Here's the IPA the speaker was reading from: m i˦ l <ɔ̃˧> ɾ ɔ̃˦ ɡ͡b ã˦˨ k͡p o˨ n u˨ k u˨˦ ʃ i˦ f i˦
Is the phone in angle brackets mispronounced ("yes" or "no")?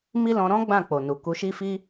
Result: no